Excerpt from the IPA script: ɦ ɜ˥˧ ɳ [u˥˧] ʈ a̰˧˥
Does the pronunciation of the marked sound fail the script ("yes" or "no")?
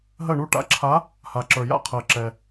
no